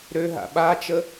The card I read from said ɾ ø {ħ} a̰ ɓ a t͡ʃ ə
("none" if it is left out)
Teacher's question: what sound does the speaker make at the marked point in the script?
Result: ɦ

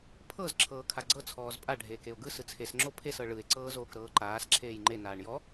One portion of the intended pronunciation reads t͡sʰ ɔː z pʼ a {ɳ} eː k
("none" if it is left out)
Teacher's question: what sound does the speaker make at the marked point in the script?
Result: ɖʱ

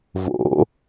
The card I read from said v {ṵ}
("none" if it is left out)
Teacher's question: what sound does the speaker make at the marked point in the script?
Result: o̰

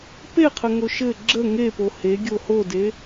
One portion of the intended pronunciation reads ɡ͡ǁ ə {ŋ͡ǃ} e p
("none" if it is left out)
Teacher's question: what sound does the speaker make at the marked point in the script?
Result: ŋ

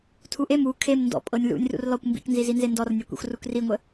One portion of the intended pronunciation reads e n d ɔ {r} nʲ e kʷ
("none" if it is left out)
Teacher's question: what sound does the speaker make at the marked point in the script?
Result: r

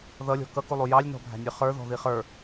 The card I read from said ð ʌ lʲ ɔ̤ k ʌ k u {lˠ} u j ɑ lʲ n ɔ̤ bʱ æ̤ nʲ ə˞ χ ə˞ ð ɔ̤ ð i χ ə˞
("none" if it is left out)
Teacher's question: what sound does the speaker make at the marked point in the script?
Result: lˠ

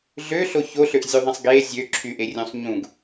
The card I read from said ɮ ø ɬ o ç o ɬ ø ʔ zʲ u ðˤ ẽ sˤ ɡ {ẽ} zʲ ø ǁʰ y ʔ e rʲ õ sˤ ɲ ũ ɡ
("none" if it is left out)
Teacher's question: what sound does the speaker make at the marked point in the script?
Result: e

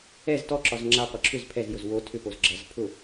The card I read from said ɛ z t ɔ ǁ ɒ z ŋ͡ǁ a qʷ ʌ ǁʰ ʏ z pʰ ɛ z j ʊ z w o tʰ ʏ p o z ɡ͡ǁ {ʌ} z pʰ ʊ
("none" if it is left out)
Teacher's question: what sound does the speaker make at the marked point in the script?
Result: ʌ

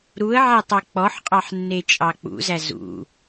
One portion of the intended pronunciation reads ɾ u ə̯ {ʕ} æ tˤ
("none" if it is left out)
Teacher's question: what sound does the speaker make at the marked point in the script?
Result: ʕ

